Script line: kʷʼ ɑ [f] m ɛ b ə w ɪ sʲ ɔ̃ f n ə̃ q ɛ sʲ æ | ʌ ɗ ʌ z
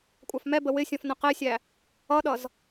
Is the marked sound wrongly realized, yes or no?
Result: no